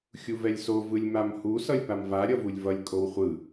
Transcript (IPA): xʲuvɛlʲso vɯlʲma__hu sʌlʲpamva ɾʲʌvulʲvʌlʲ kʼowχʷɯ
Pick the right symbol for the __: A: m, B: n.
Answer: A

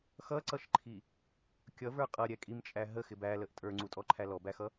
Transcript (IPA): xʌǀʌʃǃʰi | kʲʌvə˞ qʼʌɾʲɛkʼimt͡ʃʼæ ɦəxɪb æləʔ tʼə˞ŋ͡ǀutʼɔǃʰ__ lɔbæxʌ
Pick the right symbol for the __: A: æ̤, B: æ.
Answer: B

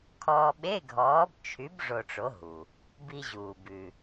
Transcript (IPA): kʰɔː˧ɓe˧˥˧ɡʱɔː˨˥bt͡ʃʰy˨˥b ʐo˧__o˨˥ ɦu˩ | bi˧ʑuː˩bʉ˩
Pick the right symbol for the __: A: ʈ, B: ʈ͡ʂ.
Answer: B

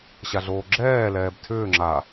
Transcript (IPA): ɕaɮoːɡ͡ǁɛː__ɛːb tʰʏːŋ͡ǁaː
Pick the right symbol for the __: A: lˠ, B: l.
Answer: B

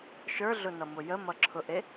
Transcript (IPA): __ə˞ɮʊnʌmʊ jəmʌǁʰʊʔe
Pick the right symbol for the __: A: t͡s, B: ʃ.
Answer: B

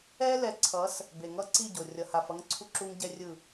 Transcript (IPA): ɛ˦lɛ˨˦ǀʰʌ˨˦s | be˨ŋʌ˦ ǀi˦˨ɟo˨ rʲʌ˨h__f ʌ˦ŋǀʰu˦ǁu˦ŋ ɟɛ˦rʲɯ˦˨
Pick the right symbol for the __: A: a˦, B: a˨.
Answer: B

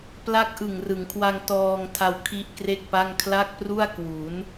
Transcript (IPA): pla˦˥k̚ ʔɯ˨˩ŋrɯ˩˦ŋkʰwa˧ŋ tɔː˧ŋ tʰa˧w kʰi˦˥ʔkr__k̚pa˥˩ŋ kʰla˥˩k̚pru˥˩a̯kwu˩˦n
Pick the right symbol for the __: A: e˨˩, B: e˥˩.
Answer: B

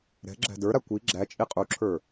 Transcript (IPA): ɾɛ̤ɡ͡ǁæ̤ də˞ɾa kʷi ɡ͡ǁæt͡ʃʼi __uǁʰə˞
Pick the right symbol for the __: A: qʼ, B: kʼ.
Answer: A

